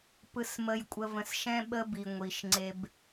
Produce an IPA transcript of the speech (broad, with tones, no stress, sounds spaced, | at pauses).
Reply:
p ɯ˨ s m ə˨ j kʷʼ ə˨ v ə̃˨ s ʃ ɛ̃˦ ɓ ə˦ b i˨ ŋʷ i˨ ʃ ŋ͡ǀ e˨ b